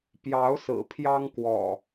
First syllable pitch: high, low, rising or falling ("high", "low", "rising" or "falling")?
rising